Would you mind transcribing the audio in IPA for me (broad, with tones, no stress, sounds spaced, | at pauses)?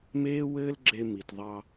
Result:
m eː˦ w ɘː˦ l ɡ͡ǁ e˧ m i˨ t ðˤ ɑ˧